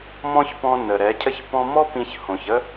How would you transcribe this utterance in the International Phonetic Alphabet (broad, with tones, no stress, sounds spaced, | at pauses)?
m ɔ̃˦ ç p ɔ̃˧ n ə˨ ɾ ɛ˨˦ cʰ ə˦ ç p ɔ̃˦ m ɔ˦ p ĩ˧ ç h õ˨ ç ə˦